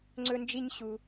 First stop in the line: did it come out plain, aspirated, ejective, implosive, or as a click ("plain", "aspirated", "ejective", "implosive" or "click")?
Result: click